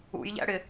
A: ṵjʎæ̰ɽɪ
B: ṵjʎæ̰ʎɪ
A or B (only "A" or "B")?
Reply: A